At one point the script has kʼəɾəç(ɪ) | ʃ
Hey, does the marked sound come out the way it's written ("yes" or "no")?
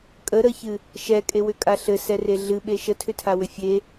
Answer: no